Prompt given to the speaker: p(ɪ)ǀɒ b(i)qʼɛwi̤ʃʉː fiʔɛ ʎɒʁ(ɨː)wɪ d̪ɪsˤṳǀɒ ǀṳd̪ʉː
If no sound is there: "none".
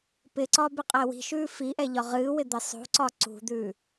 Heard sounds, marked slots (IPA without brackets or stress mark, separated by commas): ɪ, ɪ, ɨː